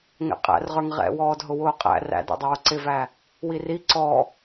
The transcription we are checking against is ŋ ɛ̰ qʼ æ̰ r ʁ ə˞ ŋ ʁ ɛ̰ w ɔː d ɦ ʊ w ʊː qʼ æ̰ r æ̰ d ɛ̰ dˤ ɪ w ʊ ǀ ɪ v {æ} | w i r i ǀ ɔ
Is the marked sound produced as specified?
yes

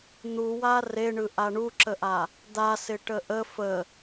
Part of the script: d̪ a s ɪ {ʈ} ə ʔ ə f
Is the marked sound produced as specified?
yes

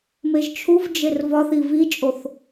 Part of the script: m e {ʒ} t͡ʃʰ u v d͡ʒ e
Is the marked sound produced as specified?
yes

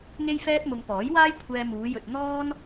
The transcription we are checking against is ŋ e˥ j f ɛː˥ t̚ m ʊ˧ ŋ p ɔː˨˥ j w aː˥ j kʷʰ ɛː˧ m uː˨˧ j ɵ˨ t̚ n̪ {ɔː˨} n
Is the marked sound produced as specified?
no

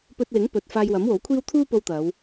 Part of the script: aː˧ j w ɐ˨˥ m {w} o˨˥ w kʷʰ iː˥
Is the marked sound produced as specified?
yes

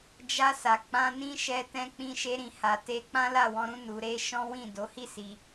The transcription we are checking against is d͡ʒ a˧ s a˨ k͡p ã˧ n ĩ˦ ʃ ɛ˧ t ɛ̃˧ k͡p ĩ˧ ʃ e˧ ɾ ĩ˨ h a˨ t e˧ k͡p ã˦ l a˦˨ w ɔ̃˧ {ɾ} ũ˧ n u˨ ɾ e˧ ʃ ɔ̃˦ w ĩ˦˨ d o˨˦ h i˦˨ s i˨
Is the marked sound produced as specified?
yes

